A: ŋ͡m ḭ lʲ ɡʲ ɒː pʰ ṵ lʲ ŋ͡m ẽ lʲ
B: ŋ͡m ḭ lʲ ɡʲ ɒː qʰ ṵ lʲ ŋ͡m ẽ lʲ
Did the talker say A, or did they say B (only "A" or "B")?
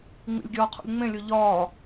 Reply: B